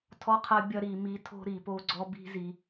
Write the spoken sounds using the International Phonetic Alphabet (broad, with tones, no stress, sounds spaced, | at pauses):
tʰ ɔ˦ qʰ ɐ˦ bʲ ɐ˧ ɾ i˨ m i˧ tʰ o̤˦ ɾ i˨ p o˧ ɡ͡ǀ ɔ˧ b i̤˧ z i˨